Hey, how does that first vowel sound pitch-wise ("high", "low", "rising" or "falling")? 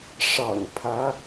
low